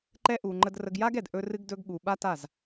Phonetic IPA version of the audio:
ǃ ɛ˧ ʔ u˨ ŋ͡ǃ ə˧ d r ə˧ ɡ j a˦ ɡ ɛ˨ d ʔ ɵ˧ r ɨ˧ ɡ d ɵ˧ ɡ ɠ u˨ ɓ a˦ t a˦˨ z

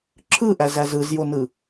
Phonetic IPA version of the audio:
ǁʰ ɯ ʔ æ z æ z ɯ z j o n ɯ

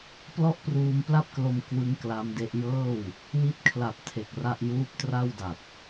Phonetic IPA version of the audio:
p l ɔ˥˩ ʔ p r uː˧ m p l a˥˩ p̚ k l o˧ m k w ɯ˦˥ ŋ k l a˦˥ m d e˦˥ ʔ j ɤː˥˩ w | w i˦˥ t̚ kʰ l a˨˩ p̚ tʰ e˨˩ k̚ r a˥˩ ʔ j uː˦˥ p̚ t r a˥˩ w d a˨˩ t̚

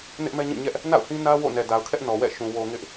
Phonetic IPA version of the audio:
n ɪ˦ ʔ m ɛ˦ ɲ ĩ˦˨ ɲ ɛ˦ ʔ | n a̰˦˨ ʊ̯ h ĩ˦ n ä˦ w o̰˦˨ n ɛ˨ d a˨ ʊ̯ kʰ ɛ˦ ʔ n ɔ˨ w ɛ̰˦˨ ʃ ũ˨ w o˨ ŋ ɪ˦ ʔ

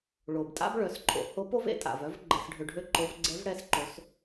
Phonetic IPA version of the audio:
ɭ o˩ b tʼ a̰˥ b ɭ œ˩˧ s ǃʼ o̰˩ h o˧˥ p o˥ v ḛ˩˧ tʼ a̰˩ v œ˧˥ v ɡ͡ǃ ɛ˧ s ɖʱ ø˧ ɖʱ ø˥ ǃ o˧˥ v ɡ͡ǀ ɛ˧˥ v ɽ ɛ˧˥ s ǃ o˩˧ s

